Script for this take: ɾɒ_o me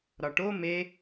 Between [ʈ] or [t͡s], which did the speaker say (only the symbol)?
ʈ